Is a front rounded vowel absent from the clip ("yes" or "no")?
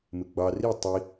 yes